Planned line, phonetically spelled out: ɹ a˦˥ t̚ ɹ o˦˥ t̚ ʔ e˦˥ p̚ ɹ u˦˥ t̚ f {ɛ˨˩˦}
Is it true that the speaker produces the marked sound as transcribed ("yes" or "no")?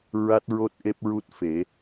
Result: no